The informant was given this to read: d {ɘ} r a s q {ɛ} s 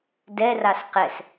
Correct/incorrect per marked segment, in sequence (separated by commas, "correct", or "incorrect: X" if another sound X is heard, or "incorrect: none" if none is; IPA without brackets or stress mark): incorrect: ɛ, correct